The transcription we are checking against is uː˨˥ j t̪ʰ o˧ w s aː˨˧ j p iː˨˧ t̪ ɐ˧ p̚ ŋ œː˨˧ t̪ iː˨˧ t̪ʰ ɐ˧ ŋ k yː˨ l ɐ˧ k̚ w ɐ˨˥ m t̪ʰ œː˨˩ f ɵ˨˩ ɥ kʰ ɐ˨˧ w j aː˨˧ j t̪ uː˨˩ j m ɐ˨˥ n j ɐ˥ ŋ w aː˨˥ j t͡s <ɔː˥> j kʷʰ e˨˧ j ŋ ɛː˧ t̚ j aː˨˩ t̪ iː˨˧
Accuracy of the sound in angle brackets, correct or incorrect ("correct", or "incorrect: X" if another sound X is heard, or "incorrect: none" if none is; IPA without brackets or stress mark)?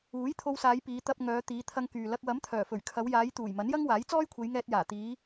correct